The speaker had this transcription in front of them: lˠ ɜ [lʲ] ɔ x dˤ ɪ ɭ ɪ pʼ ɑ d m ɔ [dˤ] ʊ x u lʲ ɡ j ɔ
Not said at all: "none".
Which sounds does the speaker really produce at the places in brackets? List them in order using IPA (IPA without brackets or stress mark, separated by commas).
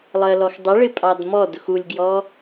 l, d